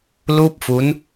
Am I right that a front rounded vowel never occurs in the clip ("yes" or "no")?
yes